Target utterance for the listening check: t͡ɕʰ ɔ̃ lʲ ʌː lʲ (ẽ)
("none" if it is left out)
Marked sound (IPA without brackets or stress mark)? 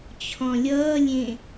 ẽ